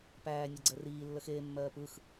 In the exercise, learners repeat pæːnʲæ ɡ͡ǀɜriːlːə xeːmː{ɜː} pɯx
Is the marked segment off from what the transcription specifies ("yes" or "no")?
no